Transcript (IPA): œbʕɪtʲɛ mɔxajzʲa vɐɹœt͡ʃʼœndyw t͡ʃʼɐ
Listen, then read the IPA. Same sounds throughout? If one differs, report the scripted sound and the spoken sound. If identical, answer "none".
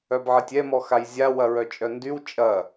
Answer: v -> w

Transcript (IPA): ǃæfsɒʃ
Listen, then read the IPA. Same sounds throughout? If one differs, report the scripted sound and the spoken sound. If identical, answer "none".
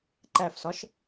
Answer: none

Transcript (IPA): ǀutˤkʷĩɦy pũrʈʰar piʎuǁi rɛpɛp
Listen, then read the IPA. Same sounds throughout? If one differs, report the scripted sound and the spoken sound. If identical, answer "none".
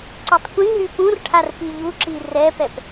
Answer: none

